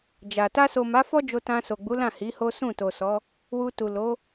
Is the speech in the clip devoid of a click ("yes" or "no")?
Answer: yes